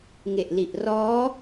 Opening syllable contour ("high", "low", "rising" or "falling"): low